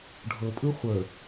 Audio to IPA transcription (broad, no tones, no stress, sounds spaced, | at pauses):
ɖʱ ɤ pʼ ɯ χʷ ə